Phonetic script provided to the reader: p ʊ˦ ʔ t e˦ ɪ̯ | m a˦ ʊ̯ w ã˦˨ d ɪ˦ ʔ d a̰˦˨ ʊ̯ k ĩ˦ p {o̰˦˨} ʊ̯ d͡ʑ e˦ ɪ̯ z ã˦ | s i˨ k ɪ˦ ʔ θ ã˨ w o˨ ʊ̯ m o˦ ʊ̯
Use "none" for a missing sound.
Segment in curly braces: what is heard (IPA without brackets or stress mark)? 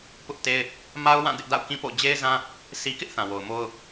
o̰˦˨